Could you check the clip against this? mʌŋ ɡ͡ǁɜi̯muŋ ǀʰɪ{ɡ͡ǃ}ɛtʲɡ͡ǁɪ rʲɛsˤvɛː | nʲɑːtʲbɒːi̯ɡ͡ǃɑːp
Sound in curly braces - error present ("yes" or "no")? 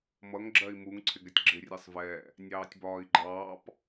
yes